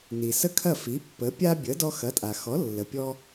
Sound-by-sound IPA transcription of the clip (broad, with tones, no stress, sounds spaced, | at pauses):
n i˩ s ə˥˩ kʰ ɐ˥˩ f i˩˥ pː ə˩˥ pʲ a˥ bʲ ə˩˥ d ɔ˧ x ɐ˩˥ tʼ a˩ x ɔ˩˥ lː ə˩ pʲ ɔ˧